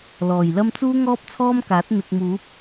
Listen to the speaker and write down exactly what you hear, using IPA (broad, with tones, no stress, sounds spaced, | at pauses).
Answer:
l ɔː˨˩ j l ɐ˥ m t͡s uː˥ ŋ ɔː˥ p̚ t͡sʰ ɔː˥ m k aː˨˥ t̚ n̪ ɪ˨ k̚ m uː˨˥ p̚